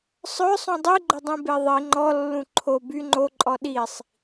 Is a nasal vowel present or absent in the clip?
present